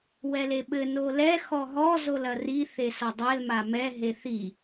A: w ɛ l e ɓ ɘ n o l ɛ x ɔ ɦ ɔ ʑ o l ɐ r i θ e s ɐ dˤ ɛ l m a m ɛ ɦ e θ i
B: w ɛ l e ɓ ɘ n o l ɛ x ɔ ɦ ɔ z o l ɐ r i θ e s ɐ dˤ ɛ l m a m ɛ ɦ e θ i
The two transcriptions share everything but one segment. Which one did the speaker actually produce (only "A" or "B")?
B